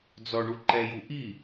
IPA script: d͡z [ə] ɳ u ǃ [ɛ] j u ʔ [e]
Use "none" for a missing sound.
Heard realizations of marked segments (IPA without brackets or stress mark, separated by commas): ɔ, ɛ, i